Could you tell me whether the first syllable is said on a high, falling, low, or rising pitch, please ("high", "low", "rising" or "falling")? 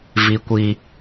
high